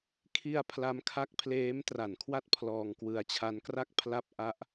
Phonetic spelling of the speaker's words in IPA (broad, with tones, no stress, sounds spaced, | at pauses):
kʰ i˧ a̯ pʰ l a˦˥ m kʰ a˦˥ k̚ pʰ l eː˦˥ m t r a˨˩ n kʰ w a˦˥ t̚ pʰ l ɔː˧ ŋ k w ɯ˧ a̯ t͡ɕʰ a˦˥ n k r a˥˩ k̚ pʰ l a˦˥ p̚ ʔ a˦˥ ʔ